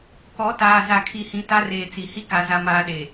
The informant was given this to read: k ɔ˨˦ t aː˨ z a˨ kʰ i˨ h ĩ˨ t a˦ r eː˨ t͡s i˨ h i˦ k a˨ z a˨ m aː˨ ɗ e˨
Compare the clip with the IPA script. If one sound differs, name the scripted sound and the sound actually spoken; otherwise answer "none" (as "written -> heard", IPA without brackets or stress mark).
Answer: none